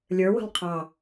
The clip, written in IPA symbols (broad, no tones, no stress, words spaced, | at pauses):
lʲə˞ wə̤lˠqʰɑ